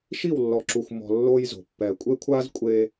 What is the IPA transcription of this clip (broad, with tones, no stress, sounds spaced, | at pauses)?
ʃ i˦˨ w lː ɔ˨ ǁ u˨ xʷ m ɔ̤˨ lː oː˦ j z o̤˨ pː ɛː˨ kʷʼ e˦ kʷʰ aː˦ z kʷʼ eː˦